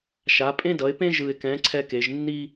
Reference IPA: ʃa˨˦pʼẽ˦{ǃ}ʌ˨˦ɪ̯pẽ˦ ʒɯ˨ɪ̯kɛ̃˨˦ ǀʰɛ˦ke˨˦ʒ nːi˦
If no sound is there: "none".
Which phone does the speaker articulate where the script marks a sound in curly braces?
d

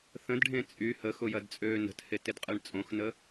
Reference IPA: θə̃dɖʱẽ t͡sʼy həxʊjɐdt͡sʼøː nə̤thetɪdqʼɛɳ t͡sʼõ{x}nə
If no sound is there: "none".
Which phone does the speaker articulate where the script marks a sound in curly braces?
x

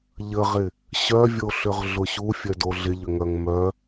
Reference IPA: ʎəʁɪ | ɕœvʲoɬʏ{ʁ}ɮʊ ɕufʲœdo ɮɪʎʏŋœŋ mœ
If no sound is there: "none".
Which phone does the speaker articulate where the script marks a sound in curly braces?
ʁ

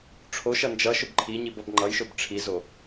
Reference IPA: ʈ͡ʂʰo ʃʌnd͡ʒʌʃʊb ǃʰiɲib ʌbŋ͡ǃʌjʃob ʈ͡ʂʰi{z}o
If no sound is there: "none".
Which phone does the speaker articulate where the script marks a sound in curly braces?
z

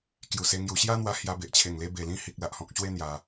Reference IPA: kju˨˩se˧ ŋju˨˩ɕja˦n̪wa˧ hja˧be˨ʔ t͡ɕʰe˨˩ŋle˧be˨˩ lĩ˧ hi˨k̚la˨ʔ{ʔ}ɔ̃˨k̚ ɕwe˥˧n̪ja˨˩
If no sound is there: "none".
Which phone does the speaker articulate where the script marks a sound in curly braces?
h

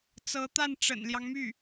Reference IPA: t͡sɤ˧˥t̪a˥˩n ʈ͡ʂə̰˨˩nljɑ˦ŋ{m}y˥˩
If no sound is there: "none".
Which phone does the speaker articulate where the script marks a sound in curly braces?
m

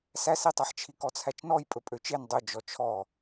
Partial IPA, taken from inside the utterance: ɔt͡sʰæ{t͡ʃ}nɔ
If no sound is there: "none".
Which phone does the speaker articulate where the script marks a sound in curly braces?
t͡ʃ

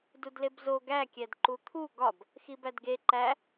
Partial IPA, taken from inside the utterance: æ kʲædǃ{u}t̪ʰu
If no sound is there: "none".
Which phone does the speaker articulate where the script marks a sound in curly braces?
u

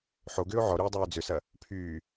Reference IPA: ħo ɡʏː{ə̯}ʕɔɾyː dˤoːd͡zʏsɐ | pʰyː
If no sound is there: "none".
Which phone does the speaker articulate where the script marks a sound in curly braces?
ʊ̯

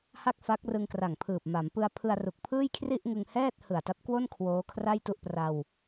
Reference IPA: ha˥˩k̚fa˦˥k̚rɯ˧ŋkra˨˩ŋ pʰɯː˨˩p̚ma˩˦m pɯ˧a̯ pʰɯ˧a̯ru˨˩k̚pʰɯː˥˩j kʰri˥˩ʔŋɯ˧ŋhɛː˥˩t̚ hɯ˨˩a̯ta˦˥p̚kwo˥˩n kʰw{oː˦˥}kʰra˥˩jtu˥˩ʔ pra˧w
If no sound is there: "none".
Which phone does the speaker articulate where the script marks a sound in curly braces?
oː˦˥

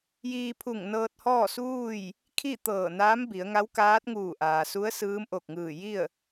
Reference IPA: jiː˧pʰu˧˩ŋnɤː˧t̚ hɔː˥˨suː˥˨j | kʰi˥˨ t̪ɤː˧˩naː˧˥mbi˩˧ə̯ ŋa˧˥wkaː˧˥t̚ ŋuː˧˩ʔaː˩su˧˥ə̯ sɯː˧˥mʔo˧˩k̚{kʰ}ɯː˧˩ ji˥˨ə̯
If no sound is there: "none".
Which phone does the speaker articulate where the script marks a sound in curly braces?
ŋ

